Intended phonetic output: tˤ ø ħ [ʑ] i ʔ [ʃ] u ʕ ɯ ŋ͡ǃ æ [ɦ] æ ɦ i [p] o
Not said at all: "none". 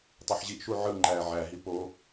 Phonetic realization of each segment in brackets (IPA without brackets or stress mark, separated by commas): ʑ, ʃ, ʕ, p